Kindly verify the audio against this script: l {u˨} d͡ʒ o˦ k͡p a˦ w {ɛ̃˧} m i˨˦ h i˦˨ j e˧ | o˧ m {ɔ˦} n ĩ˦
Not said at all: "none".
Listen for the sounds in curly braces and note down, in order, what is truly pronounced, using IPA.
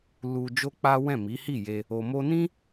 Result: u˦, ɛ̃˦˨, o˦

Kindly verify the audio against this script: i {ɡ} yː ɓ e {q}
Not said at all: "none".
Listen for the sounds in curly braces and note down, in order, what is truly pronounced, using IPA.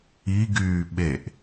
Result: ɡ, ʔ

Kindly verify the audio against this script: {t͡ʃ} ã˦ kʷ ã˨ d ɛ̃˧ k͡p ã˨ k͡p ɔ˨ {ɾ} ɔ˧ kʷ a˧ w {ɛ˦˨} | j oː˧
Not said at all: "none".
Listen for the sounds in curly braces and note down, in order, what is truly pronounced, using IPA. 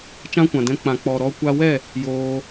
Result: t͡ʃ, ɾ, ɛ˦˨

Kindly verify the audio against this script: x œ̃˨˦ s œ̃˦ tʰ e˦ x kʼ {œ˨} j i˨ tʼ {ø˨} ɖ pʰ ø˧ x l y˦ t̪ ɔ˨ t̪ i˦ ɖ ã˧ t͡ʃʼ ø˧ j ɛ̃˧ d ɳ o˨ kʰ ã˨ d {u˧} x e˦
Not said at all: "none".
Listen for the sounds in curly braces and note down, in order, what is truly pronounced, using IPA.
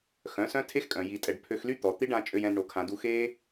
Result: œ̃˨, ɛ˨, u˧

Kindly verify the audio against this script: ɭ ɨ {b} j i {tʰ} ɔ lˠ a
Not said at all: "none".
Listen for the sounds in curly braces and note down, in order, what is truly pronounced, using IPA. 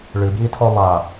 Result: b, tʰ

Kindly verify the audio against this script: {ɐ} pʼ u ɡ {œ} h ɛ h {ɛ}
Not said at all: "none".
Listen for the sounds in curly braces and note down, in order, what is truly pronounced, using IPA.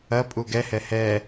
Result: ɐ, ɛ, ɛ

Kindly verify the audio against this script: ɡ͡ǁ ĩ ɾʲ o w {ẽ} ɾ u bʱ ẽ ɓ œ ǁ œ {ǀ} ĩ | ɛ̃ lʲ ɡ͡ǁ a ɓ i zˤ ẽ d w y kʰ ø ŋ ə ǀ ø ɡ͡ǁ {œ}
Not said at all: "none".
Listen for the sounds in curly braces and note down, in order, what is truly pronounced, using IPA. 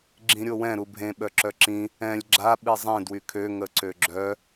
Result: ɛ̃, ǁ, œ

